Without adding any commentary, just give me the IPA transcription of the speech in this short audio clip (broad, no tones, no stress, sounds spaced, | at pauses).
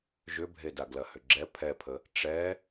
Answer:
ʒ ʏ bʱ e d a ɡ l ɐ h ʏ ɡ͡ǁ ɛ pʰ ɛ pʰ ə | ʈ͡ʂ ɛ